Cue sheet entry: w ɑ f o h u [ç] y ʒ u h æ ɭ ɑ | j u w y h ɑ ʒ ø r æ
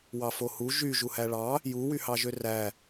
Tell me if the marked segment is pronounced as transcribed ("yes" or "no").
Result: no